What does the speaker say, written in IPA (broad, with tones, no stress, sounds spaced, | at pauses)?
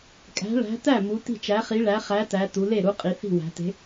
kʼ æ̤˨˥ ɭ æ̤˨˥ t æ˥˩ m u˩˧ t i̤˥˩ t͡ʃ æ˨˥ χ i˨˥ ɭ æ˨˥ χ æ˨˥ t æ˩˧ t u˩˧ l e˥˩ ɾ u˨˥ qʼ i˩˧ θ i̤˥˩ w æ̤˩˧ t e̤˨˥